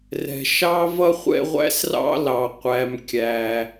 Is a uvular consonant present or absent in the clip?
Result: present